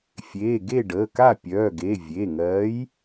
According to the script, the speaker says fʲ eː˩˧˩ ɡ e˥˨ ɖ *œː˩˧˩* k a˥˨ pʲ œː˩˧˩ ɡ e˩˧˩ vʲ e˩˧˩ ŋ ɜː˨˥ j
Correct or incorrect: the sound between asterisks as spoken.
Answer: incorrect: əː˩˧˩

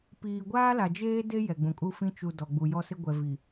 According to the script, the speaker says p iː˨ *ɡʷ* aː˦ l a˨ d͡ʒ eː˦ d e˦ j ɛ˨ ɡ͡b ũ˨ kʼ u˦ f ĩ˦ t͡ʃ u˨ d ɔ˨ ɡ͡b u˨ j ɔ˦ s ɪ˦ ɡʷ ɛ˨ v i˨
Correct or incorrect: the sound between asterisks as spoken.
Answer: correct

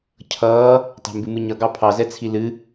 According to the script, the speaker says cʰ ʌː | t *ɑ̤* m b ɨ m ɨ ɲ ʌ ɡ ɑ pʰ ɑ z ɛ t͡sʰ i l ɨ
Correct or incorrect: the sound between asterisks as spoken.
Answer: correct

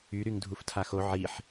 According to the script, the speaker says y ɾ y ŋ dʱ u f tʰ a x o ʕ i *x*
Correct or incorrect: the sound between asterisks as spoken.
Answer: incorrect: ħ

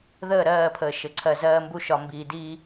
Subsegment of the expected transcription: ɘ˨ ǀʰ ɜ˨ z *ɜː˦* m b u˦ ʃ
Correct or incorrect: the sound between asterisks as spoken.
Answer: correct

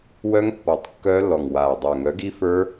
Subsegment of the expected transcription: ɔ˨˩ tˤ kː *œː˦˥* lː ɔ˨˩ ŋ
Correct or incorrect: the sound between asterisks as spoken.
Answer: correct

